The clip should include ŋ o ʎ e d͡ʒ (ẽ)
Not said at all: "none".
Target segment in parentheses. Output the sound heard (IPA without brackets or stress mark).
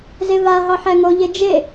e